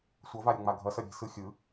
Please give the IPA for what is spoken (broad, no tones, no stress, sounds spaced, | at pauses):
sʷ ʌ v a ɾʲ ɯ ŋ͡m a ɡʱ ʌ s ʌ ɾʲ e̤ s ɯ xʲ ɯ